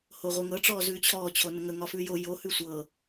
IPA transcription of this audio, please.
hoʁʷeŋɤ ʈ͡ʂɔːzʉːt͡ɕʰɔː t͡ɕʰonəŋə ŋɒfʉːjo jo hʉsʷɤ

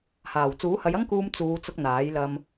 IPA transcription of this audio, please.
haː˨˩w t͡suː˨˥hɐ˨˧jɐ˥ŋkuː˧m t͡suː˨˧t͡sʊ˧k̚ n̪aː˨˥j lɐ˧m

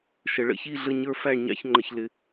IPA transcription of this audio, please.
ʃə˨ɭə̰˥˧çi˥˧ ɮə˥˧ɲə˞˥˧fæ˥˧ɳɲɑ̰˥˧ç ŋ͡ǃə˨çlɪ˨

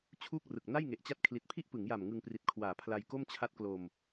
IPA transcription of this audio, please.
t͡ɕʰuː˥˩k̚rɯ˨˩k̚ na˥˩jŋe˨˩ʔt͡ɕa˦˥t̚ kʰli˨˩t̚pʰi˥˩ʔpɯ˩˦ŋja˨˩m ŋɯ˧ŋpri˨˩t̚ kʰwaː˩˦pʰla˧jko˥˩m t͡ɕʰa˦˥t̚klo˧m

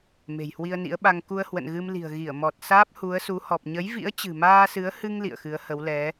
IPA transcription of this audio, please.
me̤˨˩jhwi˧ə̯nḭ˧˥ə̯ɓa˧ŋ ku˧ə̯hwə̰˧˨nɣɨ˧mli̤˨˩ə̯ ɣi˧˩ə̯mɔ˨˩t̚saː˦˥p̚ hu˨˦ə̯su˨˦hɔ˨˩p̚ ɲə˨˦jvḭ˧˥ə̯t͡ɕɨ̤˨˩ maː˧sɨ˨˦ə̯hɨ˧ŋ lḭ˧˨ə̯xɨ˨˦ə̯ hə˨˦wlɛ˨˦

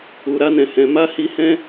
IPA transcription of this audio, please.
u˨ɾa˧nɛ̃˨ hɛ̃˧ ma˦hi˧ hɛ̃˦

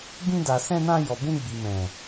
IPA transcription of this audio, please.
bĩ˧da˨sɛ̃˧nã˧ jɔ˨bũ˧ɡ͡bi˨mɛ̃˨

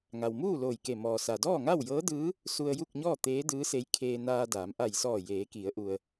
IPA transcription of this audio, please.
ŋa˩wmuː˥˨ loː˧˩jke˧˩ mɔː˩sa˩ dɔː˥˨ŋa˥˨wjɤː˧˥dɯː˧˥ | su˧ə̯ju˥˨k̚ɲɔː˥˨t̪eː˧˥ dɯː˧˥se˧˥jkʰeː˧ naː˧daː˩˧m ʔa˧˩jsɔː˧˩ jeː˩˧ki˩˧ə̯ʔu˩ə̯

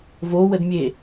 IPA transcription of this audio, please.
vowədmʲe

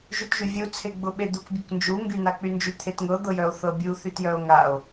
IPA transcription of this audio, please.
ʒytʒyvʲu t͡sʰeɡ͡bʊɓed̪uk bʲʊknd͡ʒu ŋɡynak͡pynd͡ʒy t̪ʰetŋɤ d̪ɤjœo̯θɤbʲu θytjœo̯ŋao̯

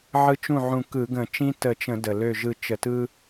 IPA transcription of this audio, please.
ʕɯ˧˥t͡ʃũ˥˩ʕũ˧˩ kɯ˧˩˧ɡə̃˧˩˧ t͡ʃĩ˥ tə˧˩t͡ʃə̃˧˩˧ də˩lø˧˩ʒɯ˧˩ t͡ʃə˧˩˧tɯ˥

